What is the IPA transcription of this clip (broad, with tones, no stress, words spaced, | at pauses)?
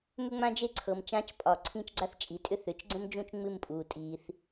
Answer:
mʏ˥ŋ͡mã˥d͡ʒe˥ ǀʰɤ˨mt͡ʃã˧˥t͡ʃpʼɒ˨˩˦ ǀʰĩ˥˨t͡ʃɡ͡ǀa˥θt͡ʃʼi˩˥tʼʏ˥ θʏ˩˥t͡ʃɡ͡ǀə̃˥md͡ʒũ˥˨t͡ʃ ŋ͡mɨ˥˨mpʼuː˨ tʼiː˨θ